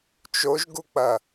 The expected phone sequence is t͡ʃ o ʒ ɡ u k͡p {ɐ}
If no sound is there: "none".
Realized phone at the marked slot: ɐ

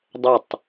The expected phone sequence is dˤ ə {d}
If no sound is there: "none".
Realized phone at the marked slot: tˤ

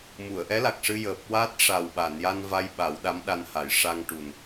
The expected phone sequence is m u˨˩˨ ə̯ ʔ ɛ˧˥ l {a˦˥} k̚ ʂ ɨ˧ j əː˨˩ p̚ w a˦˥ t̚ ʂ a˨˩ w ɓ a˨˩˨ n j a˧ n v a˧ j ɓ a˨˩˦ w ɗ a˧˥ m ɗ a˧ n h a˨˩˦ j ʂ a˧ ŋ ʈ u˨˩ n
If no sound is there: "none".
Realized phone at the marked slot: a˨˩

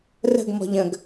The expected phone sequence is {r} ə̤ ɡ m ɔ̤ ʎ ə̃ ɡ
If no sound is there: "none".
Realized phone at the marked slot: r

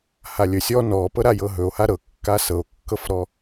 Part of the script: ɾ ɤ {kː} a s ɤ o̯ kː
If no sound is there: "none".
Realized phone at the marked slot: kː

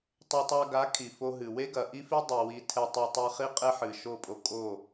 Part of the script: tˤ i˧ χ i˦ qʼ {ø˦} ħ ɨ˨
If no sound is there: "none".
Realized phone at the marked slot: e˦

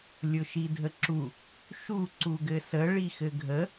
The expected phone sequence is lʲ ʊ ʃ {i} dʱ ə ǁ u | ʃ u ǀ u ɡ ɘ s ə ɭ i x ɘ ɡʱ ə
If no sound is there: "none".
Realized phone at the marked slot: i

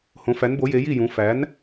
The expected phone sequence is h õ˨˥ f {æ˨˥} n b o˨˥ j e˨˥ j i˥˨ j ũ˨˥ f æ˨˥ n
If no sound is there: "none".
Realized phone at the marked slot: æ˨˥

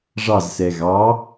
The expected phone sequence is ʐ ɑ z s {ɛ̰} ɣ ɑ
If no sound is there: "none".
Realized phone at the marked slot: ɛ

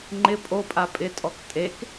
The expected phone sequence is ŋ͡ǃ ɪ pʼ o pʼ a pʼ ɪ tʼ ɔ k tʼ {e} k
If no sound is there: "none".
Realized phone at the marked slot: e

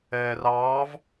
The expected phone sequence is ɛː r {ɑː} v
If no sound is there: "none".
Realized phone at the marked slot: ɑː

